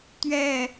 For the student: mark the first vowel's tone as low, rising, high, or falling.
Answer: falling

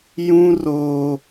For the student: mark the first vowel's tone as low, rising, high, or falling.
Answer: high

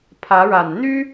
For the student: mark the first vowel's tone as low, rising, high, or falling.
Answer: rising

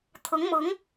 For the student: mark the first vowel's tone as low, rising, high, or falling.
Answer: rising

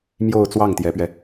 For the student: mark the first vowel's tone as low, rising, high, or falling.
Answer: falling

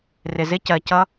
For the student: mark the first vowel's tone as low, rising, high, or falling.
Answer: low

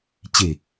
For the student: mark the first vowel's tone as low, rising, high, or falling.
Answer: low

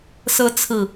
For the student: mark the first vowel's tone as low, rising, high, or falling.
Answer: rising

